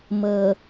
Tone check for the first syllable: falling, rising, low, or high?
low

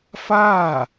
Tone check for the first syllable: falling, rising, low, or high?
falling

